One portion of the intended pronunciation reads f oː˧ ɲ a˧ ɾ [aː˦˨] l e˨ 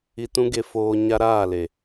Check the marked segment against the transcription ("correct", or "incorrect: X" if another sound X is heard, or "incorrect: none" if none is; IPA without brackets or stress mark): correct